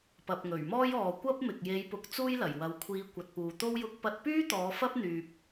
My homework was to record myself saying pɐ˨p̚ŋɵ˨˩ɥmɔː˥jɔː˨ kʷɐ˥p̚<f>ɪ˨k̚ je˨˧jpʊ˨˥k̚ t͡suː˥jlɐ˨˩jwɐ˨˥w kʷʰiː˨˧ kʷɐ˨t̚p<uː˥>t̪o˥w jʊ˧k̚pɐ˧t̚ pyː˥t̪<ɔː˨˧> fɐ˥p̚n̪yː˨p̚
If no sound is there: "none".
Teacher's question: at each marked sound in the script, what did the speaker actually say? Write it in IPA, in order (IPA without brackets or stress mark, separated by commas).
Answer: m, uː˨, ɔː˨˧